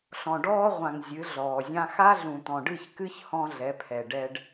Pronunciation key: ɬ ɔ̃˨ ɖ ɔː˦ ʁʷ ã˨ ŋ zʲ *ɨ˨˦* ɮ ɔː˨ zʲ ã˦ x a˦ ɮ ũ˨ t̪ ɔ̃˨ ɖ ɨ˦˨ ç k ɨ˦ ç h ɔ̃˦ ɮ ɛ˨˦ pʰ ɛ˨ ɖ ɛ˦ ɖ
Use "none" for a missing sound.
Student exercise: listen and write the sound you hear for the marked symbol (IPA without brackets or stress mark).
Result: ɨ˨˦